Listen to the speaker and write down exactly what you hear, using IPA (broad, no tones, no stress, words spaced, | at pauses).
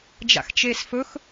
d͡ʒa̰xt͡ʃeːsfɵx